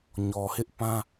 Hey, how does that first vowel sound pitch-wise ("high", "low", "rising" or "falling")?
low